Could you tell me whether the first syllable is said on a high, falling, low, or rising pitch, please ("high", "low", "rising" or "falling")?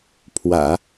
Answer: low